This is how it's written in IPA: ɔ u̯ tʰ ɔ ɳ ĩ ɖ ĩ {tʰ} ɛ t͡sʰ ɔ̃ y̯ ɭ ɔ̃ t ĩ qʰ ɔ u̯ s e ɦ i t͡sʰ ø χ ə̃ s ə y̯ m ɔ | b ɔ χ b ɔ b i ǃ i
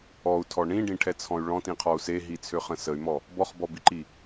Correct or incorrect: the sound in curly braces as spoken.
incorrect: ʈʰ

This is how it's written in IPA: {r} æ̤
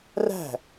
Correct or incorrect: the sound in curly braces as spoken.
correct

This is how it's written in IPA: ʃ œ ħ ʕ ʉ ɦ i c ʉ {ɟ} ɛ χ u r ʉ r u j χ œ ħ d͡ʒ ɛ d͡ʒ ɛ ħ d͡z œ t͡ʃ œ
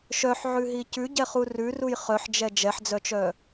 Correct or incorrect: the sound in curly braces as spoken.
correct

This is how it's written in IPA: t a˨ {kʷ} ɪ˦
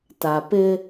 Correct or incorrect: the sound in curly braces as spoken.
incorrect: p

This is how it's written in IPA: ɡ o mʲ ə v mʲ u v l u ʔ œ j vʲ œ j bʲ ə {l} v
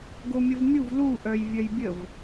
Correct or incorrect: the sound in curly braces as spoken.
incorrect: none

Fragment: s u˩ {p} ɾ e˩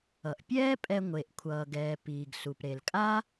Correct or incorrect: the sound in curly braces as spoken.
correct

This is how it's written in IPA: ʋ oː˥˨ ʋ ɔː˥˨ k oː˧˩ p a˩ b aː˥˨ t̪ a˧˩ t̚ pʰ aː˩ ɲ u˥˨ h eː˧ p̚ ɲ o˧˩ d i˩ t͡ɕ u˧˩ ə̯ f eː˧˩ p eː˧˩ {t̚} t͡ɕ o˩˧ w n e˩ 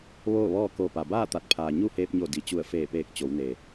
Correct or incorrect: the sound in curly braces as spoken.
incorrect: k̚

